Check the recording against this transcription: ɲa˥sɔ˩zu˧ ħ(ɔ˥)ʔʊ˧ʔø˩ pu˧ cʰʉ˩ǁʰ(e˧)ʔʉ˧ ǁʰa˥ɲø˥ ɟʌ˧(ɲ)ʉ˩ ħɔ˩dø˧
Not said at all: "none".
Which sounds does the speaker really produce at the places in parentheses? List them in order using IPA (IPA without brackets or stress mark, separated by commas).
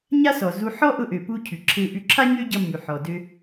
ɔ˥, e˧, mː